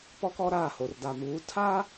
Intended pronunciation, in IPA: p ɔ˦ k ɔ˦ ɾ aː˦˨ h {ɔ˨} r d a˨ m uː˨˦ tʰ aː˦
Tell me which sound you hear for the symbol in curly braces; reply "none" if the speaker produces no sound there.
o˨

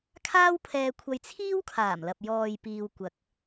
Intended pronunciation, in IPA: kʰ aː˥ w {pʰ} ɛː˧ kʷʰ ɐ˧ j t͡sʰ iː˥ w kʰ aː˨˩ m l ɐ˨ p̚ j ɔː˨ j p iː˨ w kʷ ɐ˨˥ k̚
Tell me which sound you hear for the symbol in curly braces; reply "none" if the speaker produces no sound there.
pʰ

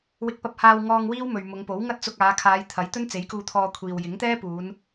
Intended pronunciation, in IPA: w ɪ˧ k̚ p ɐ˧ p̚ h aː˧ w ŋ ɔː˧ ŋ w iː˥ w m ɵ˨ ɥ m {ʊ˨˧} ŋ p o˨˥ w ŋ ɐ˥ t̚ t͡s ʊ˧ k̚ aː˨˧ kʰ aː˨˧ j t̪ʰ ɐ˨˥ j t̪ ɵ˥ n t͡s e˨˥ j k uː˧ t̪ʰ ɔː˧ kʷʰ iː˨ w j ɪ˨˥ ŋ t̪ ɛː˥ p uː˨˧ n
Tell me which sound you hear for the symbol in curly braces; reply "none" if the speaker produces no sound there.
ʊ˨˧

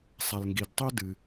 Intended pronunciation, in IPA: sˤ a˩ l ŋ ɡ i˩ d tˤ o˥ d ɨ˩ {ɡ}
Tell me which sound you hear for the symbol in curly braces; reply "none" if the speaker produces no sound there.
none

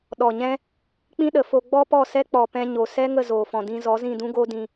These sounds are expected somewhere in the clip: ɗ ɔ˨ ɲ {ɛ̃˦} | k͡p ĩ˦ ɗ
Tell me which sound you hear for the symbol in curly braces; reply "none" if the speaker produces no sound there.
ɛ̃˦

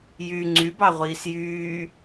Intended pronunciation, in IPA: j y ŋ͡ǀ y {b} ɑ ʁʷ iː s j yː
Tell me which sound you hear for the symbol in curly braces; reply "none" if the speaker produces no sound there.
b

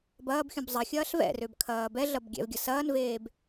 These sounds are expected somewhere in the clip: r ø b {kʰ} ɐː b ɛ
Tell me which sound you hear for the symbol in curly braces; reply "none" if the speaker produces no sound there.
kʰ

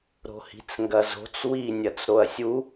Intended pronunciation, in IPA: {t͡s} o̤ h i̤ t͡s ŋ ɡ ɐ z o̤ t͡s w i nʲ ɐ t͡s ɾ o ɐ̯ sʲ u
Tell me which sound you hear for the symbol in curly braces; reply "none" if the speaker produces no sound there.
ɾ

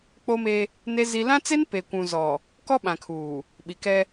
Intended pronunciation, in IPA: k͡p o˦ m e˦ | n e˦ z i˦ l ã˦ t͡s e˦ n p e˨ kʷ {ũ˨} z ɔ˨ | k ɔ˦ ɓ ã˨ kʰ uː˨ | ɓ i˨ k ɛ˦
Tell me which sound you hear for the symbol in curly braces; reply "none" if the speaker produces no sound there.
ũ˨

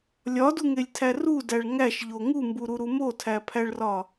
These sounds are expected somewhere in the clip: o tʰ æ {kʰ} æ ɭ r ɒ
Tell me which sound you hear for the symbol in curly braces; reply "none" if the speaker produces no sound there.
pʰ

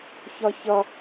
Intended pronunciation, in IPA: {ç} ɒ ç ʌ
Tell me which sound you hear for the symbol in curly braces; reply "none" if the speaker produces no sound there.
ç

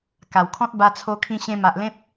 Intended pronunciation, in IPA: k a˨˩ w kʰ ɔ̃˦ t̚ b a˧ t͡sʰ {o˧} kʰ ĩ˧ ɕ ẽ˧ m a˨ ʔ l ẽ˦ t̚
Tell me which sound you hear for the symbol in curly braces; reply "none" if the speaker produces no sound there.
o˧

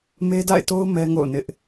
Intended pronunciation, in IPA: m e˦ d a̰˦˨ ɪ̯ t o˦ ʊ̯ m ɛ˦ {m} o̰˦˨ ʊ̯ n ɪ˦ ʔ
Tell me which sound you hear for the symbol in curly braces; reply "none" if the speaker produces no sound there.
ŋ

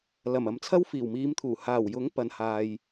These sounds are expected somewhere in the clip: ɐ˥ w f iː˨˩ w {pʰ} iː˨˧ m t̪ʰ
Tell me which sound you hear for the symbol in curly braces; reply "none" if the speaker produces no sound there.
m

